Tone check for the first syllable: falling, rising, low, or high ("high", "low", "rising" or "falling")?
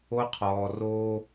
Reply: high